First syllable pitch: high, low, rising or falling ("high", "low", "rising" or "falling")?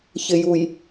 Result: low